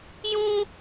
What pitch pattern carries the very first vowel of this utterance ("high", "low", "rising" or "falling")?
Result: high